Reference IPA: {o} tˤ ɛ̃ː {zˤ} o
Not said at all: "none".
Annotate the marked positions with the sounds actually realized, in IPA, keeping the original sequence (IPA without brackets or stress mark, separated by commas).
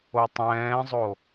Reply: o, zˤ